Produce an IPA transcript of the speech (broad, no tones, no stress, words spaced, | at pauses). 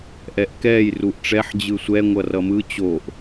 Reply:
ʔɛʔkɛːj ruʔʈ͡ʂɛħ d͡ʑɯsʷɛ ŋʷʌrʌmɯ t͡ɕoʔ